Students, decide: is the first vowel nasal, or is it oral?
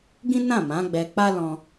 nasal